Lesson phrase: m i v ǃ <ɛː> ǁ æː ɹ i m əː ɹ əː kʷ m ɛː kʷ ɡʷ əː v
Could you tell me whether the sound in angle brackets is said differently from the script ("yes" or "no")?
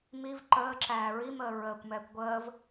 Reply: yes